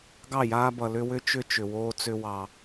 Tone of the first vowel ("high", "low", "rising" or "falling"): falling